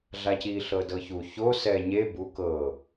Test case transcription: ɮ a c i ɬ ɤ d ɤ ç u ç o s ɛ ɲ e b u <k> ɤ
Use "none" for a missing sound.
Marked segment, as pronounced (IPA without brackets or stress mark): k